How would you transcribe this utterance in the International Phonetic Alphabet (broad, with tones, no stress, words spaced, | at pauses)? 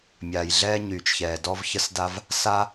mʲaː˩jɮɛː˧ɲyː˩t͡ʃçɛː˩ dɔ˧vçə˧s da˧v | sa˥